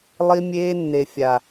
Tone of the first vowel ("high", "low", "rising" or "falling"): high